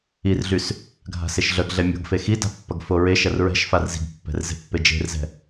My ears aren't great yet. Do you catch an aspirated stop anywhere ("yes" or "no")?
no